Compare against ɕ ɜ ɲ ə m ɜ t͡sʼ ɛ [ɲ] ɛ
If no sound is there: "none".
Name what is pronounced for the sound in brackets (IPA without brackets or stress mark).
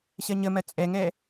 ŋ